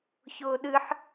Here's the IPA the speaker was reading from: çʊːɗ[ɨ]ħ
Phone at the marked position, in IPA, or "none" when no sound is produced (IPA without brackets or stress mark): ɨ